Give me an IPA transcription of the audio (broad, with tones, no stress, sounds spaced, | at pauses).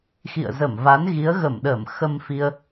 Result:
x ḭ˧˨ ə̯ z ə˧˩ m v a˨˦ n ɣ i˨˦ ə̯ ɣ ə˧˩ m ɗ əː˧˩ m x ə˧ m f i˧ ə̯